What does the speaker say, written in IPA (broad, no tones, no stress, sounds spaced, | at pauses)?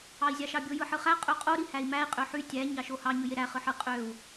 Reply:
ɑ i̯ zʲ ɑ ʃ ɑ bʲ o j ɯ ħ ɯ χ æ qʼ ø qʼ o ɾ i h æ i̯ m æ i̯ qʼ ø ħ y tʲ æ ɲ ɑ ʃ o h ɑ ɲ ɯ j e ɾ æ χ ɯ ħ ɯ qʼ ø u̯